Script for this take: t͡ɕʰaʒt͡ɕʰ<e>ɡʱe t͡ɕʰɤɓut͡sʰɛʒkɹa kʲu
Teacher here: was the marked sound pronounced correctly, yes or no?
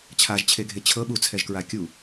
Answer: yes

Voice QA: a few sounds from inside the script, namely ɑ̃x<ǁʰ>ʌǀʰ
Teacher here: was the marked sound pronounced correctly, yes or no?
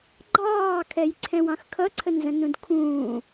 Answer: no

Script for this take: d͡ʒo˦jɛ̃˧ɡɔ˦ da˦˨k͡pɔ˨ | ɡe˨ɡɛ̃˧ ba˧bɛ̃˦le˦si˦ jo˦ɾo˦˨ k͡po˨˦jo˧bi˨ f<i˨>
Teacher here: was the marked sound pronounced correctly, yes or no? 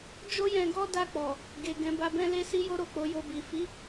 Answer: no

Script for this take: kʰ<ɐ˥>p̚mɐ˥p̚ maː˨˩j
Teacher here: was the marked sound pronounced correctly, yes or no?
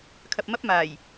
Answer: no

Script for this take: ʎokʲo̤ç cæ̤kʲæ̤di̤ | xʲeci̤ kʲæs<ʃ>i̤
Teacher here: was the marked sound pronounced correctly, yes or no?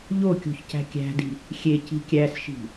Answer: yes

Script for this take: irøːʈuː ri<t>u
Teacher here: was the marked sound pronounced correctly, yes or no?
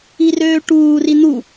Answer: no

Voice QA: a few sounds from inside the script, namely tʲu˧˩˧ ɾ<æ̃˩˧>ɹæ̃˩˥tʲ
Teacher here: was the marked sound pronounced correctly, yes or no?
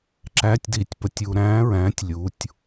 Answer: no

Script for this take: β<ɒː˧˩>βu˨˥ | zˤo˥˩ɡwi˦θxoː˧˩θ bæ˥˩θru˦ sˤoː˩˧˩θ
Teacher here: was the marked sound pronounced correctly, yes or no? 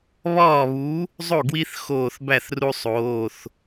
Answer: no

